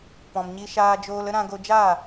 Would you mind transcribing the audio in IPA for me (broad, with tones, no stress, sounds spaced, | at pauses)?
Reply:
p ɔ̃˨ m ɲ i˧ ʃ aː˧ d͡ʒ oː˧ l ə˦ ɾ ã˧ ɡ o˧ d͡ʒ aː˦˨